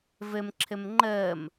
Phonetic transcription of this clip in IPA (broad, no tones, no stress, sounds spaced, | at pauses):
v ɘ m ǁʰ ɘ m ŋ͡ǃ əː m